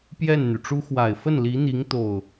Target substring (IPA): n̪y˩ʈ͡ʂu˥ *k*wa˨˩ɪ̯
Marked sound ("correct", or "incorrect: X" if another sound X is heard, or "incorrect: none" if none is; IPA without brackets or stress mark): incorrect: x